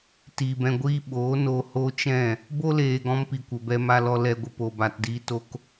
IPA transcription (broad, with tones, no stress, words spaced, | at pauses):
ti˨bɛ̃˧ɡʷiː˦ ɓoː˨˦ no˧ ho˦t͡ʃɛ̃˦˨ | bo˦leː˨ ɡɔ̃˦mpi˨ kʷə˨ bɛ˧ma˧lɔ˧ lɛ˧ɡʷə˧ po˨ba˨tdiː˧ to˦k